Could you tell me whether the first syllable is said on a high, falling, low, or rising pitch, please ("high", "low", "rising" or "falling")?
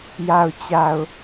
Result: low